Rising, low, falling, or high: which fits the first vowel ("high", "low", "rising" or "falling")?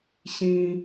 high